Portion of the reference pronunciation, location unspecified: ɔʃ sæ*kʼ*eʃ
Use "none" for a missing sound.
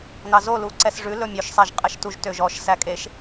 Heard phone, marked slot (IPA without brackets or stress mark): kʼ